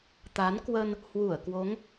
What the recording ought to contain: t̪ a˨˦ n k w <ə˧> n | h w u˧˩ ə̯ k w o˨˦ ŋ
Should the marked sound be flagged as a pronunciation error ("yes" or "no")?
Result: no